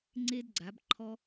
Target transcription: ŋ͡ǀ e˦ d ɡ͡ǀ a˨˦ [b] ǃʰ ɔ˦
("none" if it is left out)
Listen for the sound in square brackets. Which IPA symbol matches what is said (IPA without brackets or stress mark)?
b